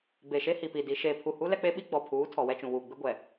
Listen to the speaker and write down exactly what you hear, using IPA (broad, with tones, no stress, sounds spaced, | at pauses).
b e˨ ʃ e˦ h i˨ p i˨ d i˨ ʃ eː˨ pʰ u˨ h u˦ l ɛ˦ k͡p e˦ ɓ i˦ ɡ͡b ɔ˨ pʰ uː˨˦ tʰ ɔ˨ w ɛ˦ t͡ʃ ũ˨ w uː˨ ɡ͡b ɪ˦ ɡʷ ɛ˨